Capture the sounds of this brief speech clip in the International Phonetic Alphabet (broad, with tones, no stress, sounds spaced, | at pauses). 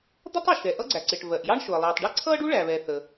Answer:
d̪ ʌ˥ tˤ u˩ ʃ ɛ˩ ʔ ʌ˥ ɡ͡ǀ æ˩ ǀ ɪ˩ ʈ v ɜ˩ ʔ j ɑ˥ ɳ ʃ ʊ˩ ə̯ lˠ iː˩ tˤ ɖ i˥ ǀʰ ʌː˥ ɖ u˥ ɭ æ˩ β ɛ˩ θ ə˩